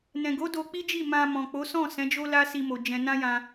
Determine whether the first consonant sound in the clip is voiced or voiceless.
voiced